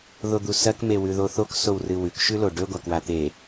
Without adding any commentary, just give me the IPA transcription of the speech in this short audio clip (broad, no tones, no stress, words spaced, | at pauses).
ðod̪usɐk mewʉðoθok sowrɨwʉk ʃʉloɖɵ ɡʷakwat̪e